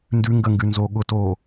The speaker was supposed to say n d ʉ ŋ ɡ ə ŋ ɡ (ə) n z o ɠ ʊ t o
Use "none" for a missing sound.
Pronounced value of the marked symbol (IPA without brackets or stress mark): ʉ